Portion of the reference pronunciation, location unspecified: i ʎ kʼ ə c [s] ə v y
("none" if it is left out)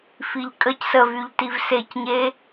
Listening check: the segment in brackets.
s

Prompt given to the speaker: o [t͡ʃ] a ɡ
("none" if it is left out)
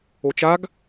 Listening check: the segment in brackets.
t͡ʃ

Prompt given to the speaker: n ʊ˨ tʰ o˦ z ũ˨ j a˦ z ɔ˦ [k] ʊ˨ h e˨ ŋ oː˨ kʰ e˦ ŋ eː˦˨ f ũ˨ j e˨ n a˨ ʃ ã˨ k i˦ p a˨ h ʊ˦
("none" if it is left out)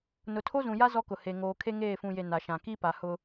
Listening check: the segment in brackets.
k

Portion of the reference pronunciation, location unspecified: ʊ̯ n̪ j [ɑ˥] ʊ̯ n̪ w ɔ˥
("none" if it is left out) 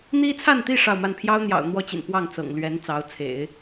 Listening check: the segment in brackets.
ɑ̰˨˩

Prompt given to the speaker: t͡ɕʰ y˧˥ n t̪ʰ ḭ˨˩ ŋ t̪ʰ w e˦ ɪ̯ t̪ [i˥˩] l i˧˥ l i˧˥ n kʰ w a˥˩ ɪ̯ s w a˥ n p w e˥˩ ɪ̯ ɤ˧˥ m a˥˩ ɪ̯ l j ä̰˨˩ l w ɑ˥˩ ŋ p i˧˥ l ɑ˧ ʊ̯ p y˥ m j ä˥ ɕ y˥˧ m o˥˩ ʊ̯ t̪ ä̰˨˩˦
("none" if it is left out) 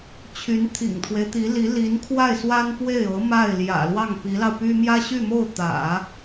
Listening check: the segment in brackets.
i˧˥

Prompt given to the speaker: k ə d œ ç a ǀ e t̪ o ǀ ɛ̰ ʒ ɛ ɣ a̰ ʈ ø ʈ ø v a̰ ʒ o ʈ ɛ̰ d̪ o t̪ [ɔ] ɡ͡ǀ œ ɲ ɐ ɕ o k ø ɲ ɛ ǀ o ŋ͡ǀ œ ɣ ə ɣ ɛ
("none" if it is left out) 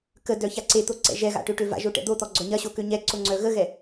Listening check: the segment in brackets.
ɔ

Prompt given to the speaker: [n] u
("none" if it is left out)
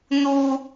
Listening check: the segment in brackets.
n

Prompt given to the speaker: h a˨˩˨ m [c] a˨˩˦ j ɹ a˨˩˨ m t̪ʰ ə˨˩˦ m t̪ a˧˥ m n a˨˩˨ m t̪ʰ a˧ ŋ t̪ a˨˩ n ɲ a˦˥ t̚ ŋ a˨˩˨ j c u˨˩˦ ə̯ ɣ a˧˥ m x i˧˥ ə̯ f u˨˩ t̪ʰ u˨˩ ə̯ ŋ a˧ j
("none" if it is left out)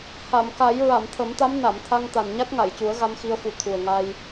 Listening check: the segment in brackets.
k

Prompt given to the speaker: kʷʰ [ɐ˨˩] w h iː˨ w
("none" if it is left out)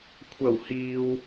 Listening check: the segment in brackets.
ɐ˨˩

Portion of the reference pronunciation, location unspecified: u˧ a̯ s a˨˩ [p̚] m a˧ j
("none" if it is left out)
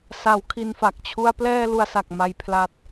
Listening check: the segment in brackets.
k̚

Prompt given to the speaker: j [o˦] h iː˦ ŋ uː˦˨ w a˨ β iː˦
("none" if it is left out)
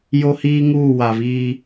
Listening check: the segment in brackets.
o˦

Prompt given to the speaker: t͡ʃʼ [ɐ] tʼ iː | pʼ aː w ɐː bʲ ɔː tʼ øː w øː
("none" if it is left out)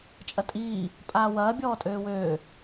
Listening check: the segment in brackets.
ɐ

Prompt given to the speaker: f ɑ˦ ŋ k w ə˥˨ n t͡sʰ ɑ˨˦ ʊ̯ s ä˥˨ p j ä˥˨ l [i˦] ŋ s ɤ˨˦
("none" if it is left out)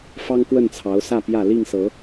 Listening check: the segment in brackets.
i˥˨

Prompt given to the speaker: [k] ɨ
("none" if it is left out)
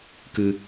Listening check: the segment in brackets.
k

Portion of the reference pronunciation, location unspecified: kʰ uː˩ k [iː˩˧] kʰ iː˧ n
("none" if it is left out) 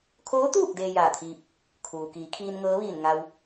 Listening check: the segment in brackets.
iː˩˧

